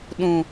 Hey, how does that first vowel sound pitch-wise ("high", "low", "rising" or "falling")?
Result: low